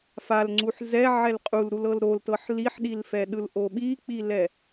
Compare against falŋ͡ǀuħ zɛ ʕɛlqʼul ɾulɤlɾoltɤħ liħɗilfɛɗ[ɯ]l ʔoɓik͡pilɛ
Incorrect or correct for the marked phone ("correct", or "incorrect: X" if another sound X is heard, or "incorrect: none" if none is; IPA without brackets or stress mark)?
correct